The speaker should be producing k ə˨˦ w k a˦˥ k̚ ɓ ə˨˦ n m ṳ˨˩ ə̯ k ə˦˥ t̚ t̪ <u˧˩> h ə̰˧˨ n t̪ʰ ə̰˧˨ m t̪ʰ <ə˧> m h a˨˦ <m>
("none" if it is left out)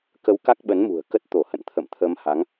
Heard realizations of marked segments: o˧˩, ə˧, ŋ

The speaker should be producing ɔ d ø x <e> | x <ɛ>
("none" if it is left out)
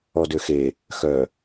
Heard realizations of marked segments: e, œ

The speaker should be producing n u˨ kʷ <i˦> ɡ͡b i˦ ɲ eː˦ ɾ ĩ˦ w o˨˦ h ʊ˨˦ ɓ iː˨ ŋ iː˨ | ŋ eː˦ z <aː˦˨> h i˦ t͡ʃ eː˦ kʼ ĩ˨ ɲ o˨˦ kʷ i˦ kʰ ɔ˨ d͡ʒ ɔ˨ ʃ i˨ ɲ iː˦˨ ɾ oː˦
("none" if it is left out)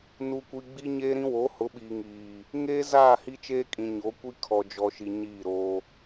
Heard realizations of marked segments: i˨, aː˦˨

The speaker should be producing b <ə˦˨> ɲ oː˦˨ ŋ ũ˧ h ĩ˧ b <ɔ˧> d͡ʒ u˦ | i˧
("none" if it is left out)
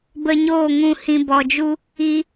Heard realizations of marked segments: ə˧, ɔ˧

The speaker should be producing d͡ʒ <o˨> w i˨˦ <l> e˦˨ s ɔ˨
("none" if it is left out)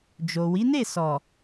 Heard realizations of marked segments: o˨, n

